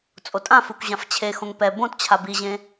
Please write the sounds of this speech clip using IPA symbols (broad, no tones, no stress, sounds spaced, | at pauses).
t͡sʼ o tʼ ã f u kʷ ʑ ã f t͡ɕʰ e x õ ŋ p ɛ b õ t t͡ɕʰ a b i ʑ ẽ